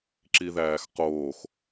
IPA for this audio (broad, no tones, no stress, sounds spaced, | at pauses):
ǁ i ð æː x q oː x